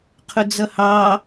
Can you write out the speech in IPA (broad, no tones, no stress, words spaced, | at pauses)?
qʰʊd͡zʌhɑ